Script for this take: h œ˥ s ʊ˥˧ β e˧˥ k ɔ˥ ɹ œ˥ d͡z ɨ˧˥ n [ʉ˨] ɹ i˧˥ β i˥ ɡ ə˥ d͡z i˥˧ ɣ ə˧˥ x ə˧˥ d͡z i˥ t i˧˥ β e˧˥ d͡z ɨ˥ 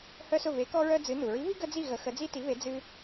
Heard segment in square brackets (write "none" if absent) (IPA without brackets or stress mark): u˨